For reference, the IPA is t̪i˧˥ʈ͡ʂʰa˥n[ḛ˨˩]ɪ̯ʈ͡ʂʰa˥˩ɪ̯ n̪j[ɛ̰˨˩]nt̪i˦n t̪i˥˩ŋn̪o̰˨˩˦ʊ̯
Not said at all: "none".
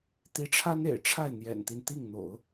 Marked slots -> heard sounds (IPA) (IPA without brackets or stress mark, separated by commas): ḛ˨˩, ɛ̰˨˩